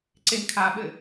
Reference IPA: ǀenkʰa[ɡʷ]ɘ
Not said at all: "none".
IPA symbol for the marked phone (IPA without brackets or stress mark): ɓ